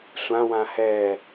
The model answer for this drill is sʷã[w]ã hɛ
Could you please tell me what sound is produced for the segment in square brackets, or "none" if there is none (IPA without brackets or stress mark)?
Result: w